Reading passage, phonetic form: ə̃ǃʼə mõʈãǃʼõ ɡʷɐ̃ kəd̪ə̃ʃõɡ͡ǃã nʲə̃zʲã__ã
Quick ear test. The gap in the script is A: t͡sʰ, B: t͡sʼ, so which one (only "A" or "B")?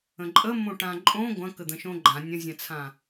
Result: A